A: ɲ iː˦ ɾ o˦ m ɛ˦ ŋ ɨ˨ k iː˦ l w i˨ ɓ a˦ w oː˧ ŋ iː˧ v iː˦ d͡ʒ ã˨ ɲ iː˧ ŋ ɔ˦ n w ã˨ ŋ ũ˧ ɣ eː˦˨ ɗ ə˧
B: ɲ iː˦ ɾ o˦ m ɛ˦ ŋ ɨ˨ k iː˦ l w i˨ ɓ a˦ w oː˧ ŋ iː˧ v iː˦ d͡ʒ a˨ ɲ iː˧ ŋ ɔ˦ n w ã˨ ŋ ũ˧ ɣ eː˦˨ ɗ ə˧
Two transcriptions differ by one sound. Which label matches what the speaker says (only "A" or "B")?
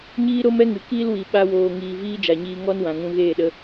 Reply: B